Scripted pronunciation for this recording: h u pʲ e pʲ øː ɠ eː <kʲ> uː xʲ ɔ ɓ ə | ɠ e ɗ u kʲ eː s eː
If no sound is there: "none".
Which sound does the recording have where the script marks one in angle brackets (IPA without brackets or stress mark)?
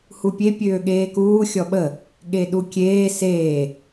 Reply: k